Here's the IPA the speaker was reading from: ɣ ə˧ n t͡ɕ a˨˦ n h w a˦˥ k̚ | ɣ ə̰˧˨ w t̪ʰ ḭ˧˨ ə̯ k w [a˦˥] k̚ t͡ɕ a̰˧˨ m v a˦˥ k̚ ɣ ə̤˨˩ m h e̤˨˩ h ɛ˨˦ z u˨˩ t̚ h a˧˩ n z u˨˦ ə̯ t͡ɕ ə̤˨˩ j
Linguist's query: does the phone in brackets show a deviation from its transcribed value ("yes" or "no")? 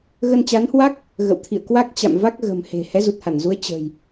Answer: no